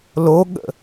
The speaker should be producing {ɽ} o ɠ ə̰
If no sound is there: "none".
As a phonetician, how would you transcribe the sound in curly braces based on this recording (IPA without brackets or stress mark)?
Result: l